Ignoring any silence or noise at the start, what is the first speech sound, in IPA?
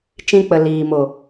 t͡ʃ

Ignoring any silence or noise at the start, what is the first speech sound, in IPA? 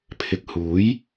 pʰ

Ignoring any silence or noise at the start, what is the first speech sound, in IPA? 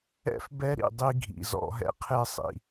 ɛ̰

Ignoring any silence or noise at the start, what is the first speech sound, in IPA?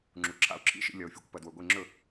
ŋ͡ǁ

